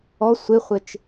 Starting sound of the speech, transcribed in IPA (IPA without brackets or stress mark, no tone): ɔ